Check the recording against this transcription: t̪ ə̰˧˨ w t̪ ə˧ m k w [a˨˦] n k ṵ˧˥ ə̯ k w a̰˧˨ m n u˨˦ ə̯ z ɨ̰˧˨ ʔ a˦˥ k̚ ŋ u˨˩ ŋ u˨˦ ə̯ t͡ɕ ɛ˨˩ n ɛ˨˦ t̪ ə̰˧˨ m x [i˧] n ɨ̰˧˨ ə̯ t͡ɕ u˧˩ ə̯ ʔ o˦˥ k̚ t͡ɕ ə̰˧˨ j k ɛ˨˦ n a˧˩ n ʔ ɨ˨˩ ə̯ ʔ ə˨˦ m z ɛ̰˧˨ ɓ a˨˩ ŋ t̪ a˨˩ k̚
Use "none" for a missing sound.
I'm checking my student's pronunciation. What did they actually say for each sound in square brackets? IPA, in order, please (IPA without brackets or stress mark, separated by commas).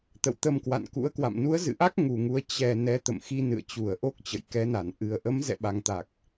a̰˧˨, i˧